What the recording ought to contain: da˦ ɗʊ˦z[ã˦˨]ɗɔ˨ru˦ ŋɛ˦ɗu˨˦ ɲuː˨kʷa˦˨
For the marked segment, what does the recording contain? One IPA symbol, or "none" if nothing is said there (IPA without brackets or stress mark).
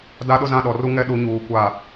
ã˦˨